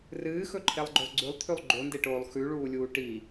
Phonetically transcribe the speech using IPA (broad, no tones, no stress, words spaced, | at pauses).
rɨːxɵǃʰelˠɡ͡ǃɵlˠ ɡ͡ǀʉlˠt̪ʰʉlˠ ɡ͡ǃondeʈoːlˠ xʉɭuːlʲuː ʈi